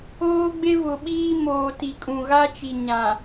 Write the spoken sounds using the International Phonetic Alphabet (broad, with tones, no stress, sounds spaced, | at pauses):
oː˦ ɡ͡b e˦ v ʊ˨ ɓ iː˦ m oː˨ t i˨ kʼ ũ˨ ɣ a˦ t͡ʃ i˨ ɲ ã˨